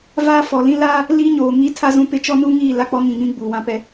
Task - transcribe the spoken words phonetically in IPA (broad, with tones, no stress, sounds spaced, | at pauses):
v aː˦ f ɔ˨ l ĩ˦ l aː˦ | l i˦ ɲ oː˨ ŋ i˦ tʰ a˦ z ũ˦ p ɪ˦ t͡ʃ ɔ˦ n u˦ ŋ iː˦˨ l a˦ k͡p ɔ˦ ŋ ĩ˨ ŋ ĩ˦ ɡ͡b uː˨ w ã˦ p ɛ˦